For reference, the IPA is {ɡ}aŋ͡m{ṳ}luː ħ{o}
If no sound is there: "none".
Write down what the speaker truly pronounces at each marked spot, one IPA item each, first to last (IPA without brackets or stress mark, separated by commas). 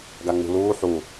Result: ɡ, ṳ, u